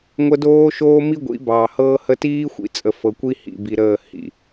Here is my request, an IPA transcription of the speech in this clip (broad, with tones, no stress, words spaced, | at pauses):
ŋʷə˦ doː˦ʃoː˦ mi˦ɡʷḭ˨˦bɑː˨ hɤː˦hə˦ tiː˦xʷḭ˨t͡sʼə˨fɤ˨ kʷi˦ hḭ˨bi˨ɾəː˦˨hḭ˨